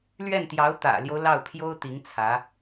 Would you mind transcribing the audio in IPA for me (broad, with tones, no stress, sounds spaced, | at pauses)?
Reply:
l ɥ ɛ˥˩ n t̪ j ɑ˧˥ ʊ̯ t̪ ä̰˨˩ l j o˦ ʊ̯ l ɑ˥˩ ʊ̯ pʰ j o˥ ʊ̯ t̪ i˧˥ ŋ t͡sʰ ä˧˥